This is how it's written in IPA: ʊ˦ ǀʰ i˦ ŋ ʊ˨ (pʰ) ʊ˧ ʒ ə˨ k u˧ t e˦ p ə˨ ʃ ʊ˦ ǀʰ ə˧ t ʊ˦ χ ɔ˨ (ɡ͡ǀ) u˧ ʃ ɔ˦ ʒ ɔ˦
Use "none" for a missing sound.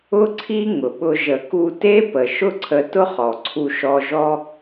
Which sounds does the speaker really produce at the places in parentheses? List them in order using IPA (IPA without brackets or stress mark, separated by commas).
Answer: ɓ, ǀʰ